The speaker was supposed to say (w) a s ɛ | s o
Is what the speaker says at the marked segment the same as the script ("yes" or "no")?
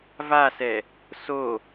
no